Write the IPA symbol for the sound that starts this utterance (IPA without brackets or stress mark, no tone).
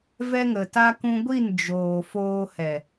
v